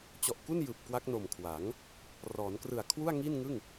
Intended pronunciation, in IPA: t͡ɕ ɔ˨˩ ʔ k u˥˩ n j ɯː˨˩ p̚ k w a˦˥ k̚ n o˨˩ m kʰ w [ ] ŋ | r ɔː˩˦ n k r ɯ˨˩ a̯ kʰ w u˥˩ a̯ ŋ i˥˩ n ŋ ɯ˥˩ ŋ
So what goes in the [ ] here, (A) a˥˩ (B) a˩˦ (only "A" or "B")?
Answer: B